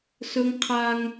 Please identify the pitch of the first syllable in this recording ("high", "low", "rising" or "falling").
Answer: high